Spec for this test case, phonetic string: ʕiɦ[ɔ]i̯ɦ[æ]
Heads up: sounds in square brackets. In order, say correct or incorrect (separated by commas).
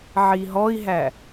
correct, correct